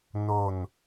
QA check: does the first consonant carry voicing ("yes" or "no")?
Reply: yes